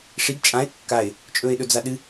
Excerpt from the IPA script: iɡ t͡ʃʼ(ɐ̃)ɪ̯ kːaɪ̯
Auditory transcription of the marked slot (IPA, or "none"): ã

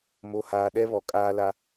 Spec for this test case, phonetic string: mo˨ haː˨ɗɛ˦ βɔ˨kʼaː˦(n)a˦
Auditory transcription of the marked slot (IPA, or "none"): l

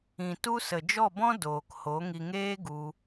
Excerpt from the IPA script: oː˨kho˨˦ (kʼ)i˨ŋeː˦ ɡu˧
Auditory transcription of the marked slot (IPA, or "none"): ŋ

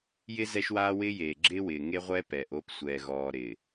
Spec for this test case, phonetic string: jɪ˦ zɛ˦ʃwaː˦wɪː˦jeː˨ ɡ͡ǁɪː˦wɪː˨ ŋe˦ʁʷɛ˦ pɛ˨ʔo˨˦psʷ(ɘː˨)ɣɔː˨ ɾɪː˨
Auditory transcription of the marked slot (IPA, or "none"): ɛː˨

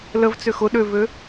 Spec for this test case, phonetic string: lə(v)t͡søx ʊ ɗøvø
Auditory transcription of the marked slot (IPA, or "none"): v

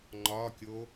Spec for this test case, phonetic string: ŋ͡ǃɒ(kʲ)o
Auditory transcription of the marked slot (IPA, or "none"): kʲ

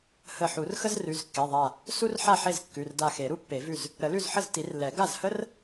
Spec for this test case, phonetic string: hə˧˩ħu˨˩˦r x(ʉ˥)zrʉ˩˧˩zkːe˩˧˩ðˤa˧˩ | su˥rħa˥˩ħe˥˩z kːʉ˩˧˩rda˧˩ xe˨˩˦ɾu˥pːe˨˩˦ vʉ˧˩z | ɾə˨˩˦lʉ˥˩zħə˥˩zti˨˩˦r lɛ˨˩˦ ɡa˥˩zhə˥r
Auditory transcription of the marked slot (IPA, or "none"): ə˥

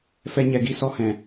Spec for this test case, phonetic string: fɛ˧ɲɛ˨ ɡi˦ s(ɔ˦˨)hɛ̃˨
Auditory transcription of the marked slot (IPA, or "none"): ɔ˧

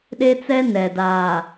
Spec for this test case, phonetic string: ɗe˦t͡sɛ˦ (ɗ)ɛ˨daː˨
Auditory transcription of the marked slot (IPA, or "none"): n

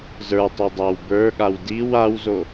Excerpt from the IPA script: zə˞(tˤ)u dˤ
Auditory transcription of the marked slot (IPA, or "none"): tˤ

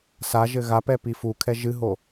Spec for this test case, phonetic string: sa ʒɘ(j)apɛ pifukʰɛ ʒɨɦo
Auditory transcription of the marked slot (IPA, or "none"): ɣ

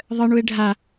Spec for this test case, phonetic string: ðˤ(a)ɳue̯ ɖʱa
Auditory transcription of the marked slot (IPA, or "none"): ə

